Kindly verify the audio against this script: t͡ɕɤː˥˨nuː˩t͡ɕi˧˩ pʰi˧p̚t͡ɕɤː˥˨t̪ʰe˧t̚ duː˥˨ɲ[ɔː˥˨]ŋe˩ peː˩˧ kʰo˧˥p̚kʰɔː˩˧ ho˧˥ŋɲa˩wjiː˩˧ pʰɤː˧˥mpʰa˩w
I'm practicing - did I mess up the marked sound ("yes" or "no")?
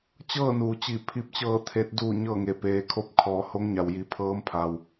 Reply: yes